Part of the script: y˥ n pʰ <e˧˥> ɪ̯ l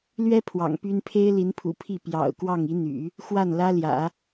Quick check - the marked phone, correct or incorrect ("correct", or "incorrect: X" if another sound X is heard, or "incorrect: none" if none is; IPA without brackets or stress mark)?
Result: incorrect: e˥